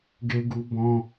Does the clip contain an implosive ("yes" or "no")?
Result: no